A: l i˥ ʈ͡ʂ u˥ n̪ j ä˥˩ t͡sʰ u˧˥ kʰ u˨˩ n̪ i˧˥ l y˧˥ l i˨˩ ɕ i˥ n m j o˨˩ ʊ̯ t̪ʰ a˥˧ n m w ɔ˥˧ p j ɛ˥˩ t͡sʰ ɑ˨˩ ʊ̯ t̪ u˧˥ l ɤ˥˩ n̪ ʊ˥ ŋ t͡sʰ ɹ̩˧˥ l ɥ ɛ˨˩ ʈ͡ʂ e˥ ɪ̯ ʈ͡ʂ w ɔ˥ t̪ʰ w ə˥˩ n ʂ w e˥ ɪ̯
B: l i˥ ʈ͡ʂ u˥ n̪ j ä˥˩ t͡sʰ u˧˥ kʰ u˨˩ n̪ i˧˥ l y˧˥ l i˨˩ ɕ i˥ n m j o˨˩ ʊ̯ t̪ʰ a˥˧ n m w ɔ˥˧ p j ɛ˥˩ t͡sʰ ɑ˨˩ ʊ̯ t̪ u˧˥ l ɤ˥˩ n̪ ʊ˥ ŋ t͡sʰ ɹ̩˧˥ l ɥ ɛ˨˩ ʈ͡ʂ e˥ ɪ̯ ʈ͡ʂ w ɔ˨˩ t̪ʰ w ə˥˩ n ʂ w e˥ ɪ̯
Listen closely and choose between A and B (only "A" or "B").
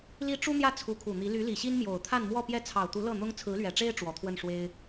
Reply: B